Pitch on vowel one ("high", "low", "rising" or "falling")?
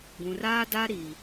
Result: low